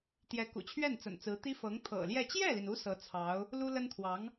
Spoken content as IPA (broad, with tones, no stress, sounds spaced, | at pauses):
t̪ j ɛ˧˥ k ṵ˨˩ t͡ɕʰ ɥ ɛ˥˩ n t͡s ə̰˨˩ n t͡s ɹ̩˧˥ t̪ i˥ f ɤ˧˥ ŋ t̪ʰ ɤ̰˨˩ l j ɛ˥˧ t͡ɕ j ɛ˥˩ l i˩ n u˧˥ s ɤ˧˥ t͡sʰ ɑ˧˥ ʊ̯ | l u˥ l ə˥ n t̪ʰ w ɑ˧˥ ŋ